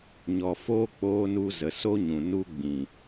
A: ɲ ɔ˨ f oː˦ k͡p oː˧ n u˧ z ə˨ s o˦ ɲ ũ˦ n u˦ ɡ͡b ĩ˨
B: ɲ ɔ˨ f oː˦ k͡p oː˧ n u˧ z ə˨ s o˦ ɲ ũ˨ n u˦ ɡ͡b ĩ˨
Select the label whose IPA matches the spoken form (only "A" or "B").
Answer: B